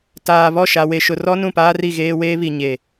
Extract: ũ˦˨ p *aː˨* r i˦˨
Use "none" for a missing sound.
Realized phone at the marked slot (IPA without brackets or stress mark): aː˦